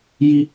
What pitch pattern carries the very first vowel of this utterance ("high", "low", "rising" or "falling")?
high